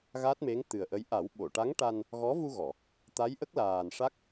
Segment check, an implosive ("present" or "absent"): present